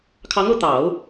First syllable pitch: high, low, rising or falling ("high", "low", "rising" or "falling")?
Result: rising